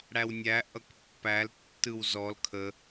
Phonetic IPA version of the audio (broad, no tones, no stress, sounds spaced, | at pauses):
ɽ æ w nʲ æ ʔ ʌ k pː æ l tː ɯ w z ɔ l kʰ ə